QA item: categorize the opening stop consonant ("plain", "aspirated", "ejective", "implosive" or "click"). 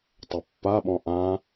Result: plain